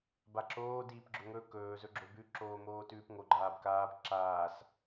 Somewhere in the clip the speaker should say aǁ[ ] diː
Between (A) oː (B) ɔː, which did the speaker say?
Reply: A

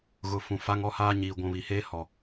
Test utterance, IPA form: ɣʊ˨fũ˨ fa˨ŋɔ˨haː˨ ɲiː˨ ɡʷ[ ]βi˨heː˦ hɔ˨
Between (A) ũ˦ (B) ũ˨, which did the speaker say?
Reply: B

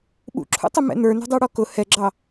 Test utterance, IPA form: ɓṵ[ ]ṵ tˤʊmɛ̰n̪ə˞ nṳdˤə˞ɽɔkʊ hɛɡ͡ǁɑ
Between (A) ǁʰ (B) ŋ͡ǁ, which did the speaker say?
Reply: A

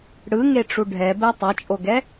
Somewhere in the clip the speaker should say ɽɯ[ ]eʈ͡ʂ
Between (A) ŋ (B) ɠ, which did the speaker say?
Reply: A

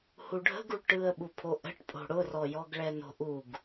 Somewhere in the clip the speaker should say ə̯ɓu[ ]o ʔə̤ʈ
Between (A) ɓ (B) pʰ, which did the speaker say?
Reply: B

